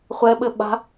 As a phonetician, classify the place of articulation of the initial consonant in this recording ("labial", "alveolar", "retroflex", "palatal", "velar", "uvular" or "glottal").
uvular